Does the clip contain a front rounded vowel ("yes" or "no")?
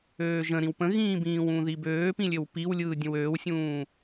yes